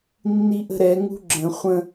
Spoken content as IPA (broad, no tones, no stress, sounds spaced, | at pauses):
nː i ʔ ə̤ ɾ ɛ ŋ ṳ ɡ͡ǁ ə̃ χʷ ə̃